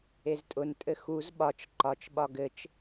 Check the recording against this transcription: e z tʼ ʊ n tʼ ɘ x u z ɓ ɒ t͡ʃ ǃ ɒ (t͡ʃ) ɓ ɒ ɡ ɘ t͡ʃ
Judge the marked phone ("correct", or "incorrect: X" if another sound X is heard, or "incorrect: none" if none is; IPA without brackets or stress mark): correct